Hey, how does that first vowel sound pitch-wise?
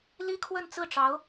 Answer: high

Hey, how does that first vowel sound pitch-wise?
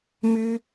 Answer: high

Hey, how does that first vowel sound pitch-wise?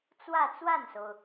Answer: falling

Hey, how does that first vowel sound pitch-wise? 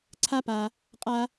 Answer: high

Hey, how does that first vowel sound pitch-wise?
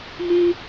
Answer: high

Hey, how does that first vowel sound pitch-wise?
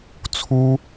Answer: high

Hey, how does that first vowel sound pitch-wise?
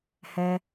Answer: high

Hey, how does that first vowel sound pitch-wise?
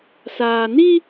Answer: low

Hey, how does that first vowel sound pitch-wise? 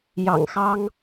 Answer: low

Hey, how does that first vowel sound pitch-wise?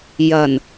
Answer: low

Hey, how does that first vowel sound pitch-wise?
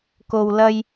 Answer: low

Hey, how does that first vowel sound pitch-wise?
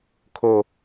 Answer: low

